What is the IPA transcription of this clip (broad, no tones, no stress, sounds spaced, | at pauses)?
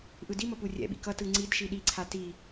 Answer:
ʔ ɯ d i m ʌ p u rʲ ɛ̰ ɓ ḭ k ʌ t ɯ ŋ͡ǀ i d ʃ i ɗ i ǀʰ a t i